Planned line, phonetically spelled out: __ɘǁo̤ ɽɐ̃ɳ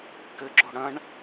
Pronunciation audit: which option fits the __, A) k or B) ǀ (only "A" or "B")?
A